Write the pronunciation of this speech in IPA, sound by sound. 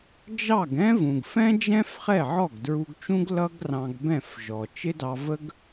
d͡ʒ ɑ˥˩ ɡ ɛ̃˥ v ũ˩ ɡ f ɛ̃˥ d͡ʒ ɛ̃˥ f χ ɛ˥˩ ʕ ɔ˥˩ ɡ d ɹ u˧ ɡ t͡ʃ ũ˥ ɡ l ʌ˥ ɡ r ɑ̃˧ ɡ b ɛ̃˥˩ f ʒ ɔ˩ t͡ʃ ɪ˥ d ɑ˧ v ə˥ ɡ

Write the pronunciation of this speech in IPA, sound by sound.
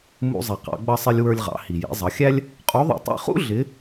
m ṵ˧ zˤ i˩ q ɑ̰˩˧ ɡ͡b ʌ˧ sˤ ɪ˧ lʲ w ə˞˧ lʲ ʁ ɑ̰˩˧ h i˩ j ḭ˩˧ zˤ ʌ˩˧ xʲ æ˥ lʲ | qʼ u˧˥ ðˤ ṵ˧ tˤ ḭ˧ χ ṵ˥ ɮ ɪ˧˥

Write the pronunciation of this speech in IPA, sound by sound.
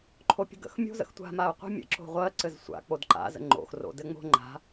ǃʰ o pʲ ə̤ ɡ ə̰ x mʲ o̤ z ə̰ x tʷ a̤ m a ʊ̯ qʷ ə̤ mʲ ə̰ ǁ o̤ ʁʷ ɜ ǀ ɘ z sʷ a̰ k͡p o d ǃ a̰ z ə̰ ŋ͡ǃ o̰ x r o̰ d ɘ ŋ͡m o̤ ŋ͡ǃ a̤

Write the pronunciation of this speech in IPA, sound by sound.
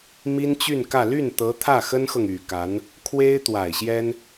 m i˥ n t͡ɕ y˥˧ n k ä˥˧ l y˥˩ n t̪ ɤ˧˥ t̪ʰ ä˥˩ x ə˥ n x ɤ˨ ŋ y˨˩ k a˧˥ n | kʰ w e˥ ɪ̯ t̪ w a˨˩ ɪ̯ ɕ j ɛ˥ n

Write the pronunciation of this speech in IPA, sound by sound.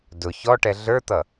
d ʊ ç ɔ ʈ ɛ ɮ ə˞ t̪ ʌ

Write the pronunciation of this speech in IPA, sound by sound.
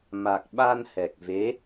m a˨˩ k̚ ɓ a˧ n h ɛ˨˩ k̚ v e˧˥

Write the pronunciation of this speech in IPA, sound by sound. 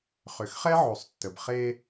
χ ʏ˨ x χ ɛ˦ ʕ o˨ sˤ tː ə˨ b χ e˦

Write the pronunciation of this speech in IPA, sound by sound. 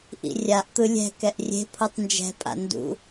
ʔ ḭ rʲ a ʔ t̪ ɯ lʲ ɛ̤ k ɛ ʔ rʲ e̤ pʰ u tˤ n d͡ʒ ɛ̤ pʼ a̰ n d ṵ

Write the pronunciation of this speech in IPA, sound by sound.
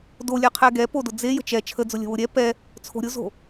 d o lʲ ɛ qʰ ɛ ɡ ɛ p o d ʊ d͡z e j ə̤ t͡ʃ ɛ t͡ʃʰ ə d͡z ʊ lʲ ə̤ w ʊ ɾʲ ɛ p ɛ | t͡sʰ o̤ ɾʲ ʊ z o̤

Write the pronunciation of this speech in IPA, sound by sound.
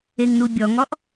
e ŋ n u bʲ ɔ ŋ ɔ ʔ

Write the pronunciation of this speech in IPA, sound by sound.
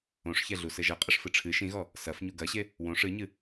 õ ʂ ç ɛ ɮ u s ɘ ʒ ɐ qʼ ɘ ʂ f ɨ ʈ͡ʂʰ ɨ ʃ ĩ ɣ ɔ | s ɐ f ɲ u ɡ ɐ ɕ e | w õ ʂ ɨ ɲ ɨ

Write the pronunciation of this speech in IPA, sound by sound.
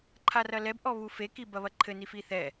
ǃʰ a r ɐ l ɛ b ʔ ɔ β u f e k i b ɐ β ɐ ǃʰ ɘ n i f i θ ɛ

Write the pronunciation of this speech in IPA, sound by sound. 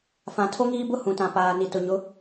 f ã˨ tʰ o˦ ŋ iː˦ b ʊ˦ h ũ˨ t ã˨ p aː˨ n i˨ t ʊ˨ ɲ ʊ˨˦

